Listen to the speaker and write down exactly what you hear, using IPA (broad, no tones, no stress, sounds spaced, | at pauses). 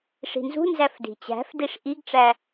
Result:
ʂ i̤ n z ṳ n z æ f d i̤ t͡ɕ æ̤ f d i ʂ ʔ i ɡ ʈ͡ʂ æ